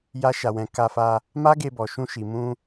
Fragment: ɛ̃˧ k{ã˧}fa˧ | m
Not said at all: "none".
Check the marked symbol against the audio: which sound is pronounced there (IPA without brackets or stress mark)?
a˧